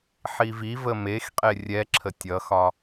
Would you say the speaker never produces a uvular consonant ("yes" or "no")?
no